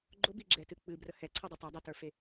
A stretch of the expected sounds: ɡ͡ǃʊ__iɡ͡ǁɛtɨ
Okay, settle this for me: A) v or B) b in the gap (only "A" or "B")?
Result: B